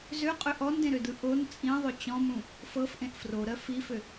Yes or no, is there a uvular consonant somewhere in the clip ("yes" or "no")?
yes